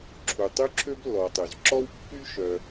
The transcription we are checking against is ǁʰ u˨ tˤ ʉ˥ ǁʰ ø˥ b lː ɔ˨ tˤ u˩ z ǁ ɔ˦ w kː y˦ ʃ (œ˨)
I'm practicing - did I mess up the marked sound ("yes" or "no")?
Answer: no